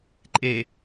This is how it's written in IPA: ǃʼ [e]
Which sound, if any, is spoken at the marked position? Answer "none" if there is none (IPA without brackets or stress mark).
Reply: e